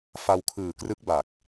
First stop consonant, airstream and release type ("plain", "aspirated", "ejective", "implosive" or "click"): aspirated